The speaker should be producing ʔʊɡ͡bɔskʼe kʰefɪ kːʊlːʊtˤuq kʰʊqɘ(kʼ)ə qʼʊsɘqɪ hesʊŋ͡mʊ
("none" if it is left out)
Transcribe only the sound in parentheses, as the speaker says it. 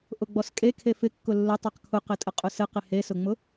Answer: tʼ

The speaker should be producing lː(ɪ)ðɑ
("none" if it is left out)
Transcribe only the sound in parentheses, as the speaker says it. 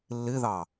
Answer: ɪ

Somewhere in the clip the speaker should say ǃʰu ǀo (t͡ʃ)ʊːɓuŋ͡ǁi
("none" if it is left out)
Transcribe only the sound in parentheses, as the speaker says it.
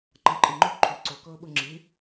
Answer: k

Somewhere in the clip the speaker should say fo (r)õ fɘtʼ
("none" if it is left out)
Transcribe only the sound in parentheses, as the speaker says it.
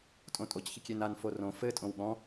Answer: r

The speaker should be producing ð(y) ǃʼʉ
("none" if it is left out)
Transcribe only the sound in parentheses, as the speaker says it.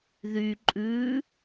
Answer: y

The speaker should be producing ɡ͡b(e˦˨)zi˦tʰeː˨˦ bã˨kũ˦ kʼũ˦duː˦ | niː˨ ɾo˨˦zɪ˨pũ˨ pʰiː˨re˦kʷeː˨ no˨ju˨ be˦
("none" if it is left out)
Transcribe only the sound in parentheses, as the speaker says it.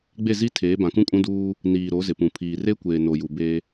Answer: e˦˨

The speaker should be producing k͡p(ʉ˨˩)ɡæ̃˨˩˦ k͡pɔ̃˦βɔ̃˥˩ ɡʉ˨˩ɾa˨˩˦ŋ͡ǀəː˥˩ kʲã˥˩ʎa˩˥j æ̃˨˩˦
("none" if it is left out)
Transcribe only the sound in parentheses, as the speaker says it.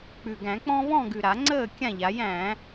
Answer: ʉ˨˩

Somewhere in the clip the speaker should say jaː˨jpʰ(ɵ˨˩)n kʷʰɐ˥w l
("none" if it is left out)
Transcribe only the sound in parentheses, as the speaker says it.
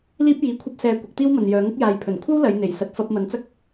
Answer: ɵ˨˩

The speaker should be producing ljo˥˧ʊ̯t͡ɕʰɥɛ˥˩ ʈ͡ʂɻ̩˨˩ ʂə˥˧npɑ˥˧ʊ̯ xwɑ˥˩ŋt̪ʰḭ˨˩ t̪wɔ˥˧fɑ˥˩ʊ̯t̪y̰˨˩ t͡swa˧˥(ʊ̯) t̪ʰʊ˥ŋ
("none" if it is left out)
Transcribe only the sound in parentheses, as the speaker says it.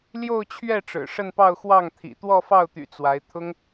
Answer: ɪ̯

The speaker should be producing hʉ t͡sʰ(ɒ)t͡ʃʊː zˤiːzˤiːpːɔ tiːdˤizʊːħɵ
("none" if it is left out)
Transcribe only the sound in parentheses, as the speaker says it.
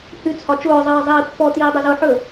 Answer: ɒ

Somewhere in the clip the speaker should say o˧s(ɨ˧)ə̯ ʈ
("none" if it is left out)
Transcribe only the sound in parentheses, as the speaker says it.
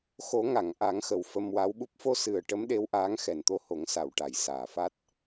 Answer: ɨ˨˩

